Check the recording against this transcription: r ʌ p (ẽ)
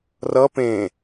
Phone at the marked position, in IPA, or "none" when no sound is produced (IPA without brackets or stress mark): ẽ